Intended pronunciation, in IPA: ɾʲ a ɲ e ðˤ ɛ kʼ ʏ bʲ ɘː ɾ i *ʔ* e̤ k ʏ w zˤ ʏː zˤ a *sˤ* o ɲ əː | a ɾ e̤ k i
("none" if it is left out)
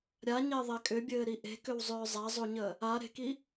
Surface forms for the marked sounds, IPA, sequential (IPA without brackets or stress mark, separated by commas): ʔ, zˤ